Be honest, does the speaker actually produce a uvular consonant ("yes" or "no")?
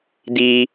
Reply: no